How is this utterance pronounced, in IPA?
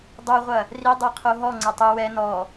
dˤ u ʁʷ ɐ | r i dˤ i qʰ o ɦ ɔ ŋ͡ǀ ɐ tˤ ɨ w ɛ n ɔ

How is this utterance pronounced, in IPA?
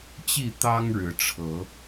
t͡ɕ i˥˨ t̪ ɑ˦ ŋ ɻ ɻ̩˨˦ ʈ͡ʂʰ ɤ˨˦

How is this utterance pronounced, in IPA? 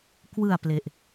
k w ɯ˨˩ a̯ p l e˨˩ ʔ

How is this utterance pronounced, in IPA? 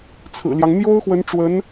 t͡sʰ ɹ̩˨˩ l j ɑ˦ ŋ n̪ j o˥ ʊ̯ x w ə˧˥ n ʈ͡ʂ w ə˧˥ n

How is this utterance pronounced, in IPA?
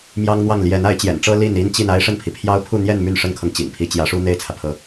m j ɑ˥ ŋ n̪ w ɑ˥˩ ŋ l j ɛ˧˥ n a˧˥ ɪ̯ t͡ɕ j ɛ̰˨˩ n ʈ͡ʂ ɤ˥ l i˥˩ n i˥ n t͡ɕ i˥˩ n a˥ ɪ̯ ʂ ə˥˩ n pʰ i˩ pʰ j ɑ˥ ʊ̯ pʰ u˥˧ n̪ j ɛ˥˧ n m y˥˩ n ʂ ə˥ n kʰ ɤ˨ ŋ t͡ɕ ḭ˨˩ ŋ pʰ i˧˥ t͡ɕ j ä˧˥ ʂ u˥ n̪ e˥˩ ɪ̯ t͡sʰ ä˩ pʰ ɤ˧˥

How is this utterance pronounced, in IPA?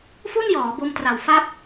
f u˥˩ n j ɔː˩˦ b o˧ m t r a˨˩ w f a˦˥ p̚

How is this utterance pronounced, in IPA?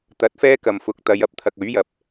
t̪ ɐ˨˥ t̚ f ɛː˥ k ɐ˨ m f ʊ˨˥ k̚ t̪ ɐ˨˧ j ɐ˨˥ p̚ t̪ʰ ɐ˨ k̚ ɵ˨˥ ɥ j ɐ˨ p̚

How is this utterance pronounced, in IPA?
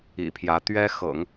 ḭ˨˩ pʰ j ä˧˥ t̪ ɥ ɛ˥ x ɤ̰˨˩˦ ŋ

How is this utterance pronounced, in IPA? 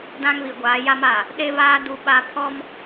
d ã˦ ŋ β i˨ ɡʷ aː˨˦ j a˦ m aː˨ | ɗ e˦ β aː˦ d u˦ ɓ a˦ pʰ ɔ˦ m

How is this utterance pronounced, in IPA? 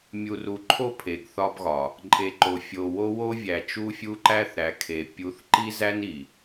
mʲ u˨ r u˨ ǃʰ o˦ pʰ e˨ ɡ θ ɒ˦ b ɣ ɒ˨ | ǃʼ e˨ ǃ o˨ fʲ o˨ w o˦ w o˦ vʲ æ˨ t͡ʃ u˦ fʲ u˦ ǃ æ˦ θ ɾ æ˨ kʰ e˨ pʲ u˨˦ θ ǃ i˦ z æ˦ n i˨

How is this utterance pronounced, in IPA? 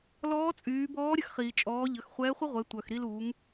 l ɔː˧˥ t͡sʼ yː˩˧ b ɔː˧˥ ɾʲ ə˧ x χ iː˩ t͡ʃʼ ɔː˩˧ ʎ ə˩˧ x χʷ ɛː˧˥ χʷ ə˥ ʁʷ ɛ˩˧ tʷ œ˩ x ɾ i˧ l u˩˧ ŋ

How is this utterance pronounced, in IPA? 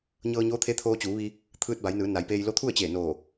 ɲ ɤː˧ ɲ oː˧˥ t̪ʰ e˧˥ t̪ʰ oː˧ t͡ɕ uː˩˧ ʋ i˧ | t̪ʰ ɯː˧ t̚ b a˩˧ j n ɯː˩˧ n a˩˧ j p eː˧ j l o˧˥ t̪ʰ u˥˨ ə̯ t͡ɕ eː˧˩ n oː˧˩

